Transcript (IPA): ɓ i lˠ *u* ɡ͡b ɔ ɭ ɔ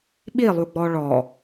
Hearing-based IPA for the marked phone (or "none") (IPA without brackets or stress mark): u